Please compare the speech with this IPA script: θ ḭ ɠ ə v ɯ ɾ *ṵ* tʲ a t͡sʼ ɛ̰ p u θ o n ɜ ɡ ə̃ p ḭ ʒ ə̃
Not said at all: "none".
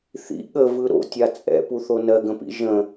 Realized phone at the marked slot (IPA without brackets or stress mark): o̰